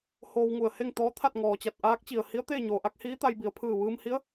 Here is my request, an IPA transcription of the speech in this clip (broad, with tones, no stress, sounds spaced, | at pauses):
h oː˧ w ŋ u˧˩ ə̯ h e˥˨ ŋ t̪ ɔː˧˥ t̪ʰ a˥˨ t̚ ŋ ɔː˩ t͡ɕ a˧˩ t̚ ʔ aː˧˥ k̚ t͡ɕ i˩ ə̯ h i˧˥ ə̯ t̪ eː˥˨ ɲ oː˩ ʔ a˧˥ k̚ h iː˧˥ t̪ a˧ j b i˩ ə̯ pʰ ɯː˧˩ ʋ ɯː˧ m h i˧˥ ə̯